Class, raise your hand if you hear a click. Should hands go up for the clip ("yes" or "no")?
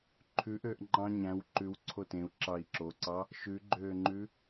yes